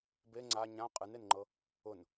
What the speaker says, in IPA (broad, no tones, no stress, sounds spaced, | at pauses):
b e ŋ͡ǀ a ɲ ã qʼ ɨ n e n ŋ͡ǃ ɤ | ʊ n